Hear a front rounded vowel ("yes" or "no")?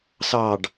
no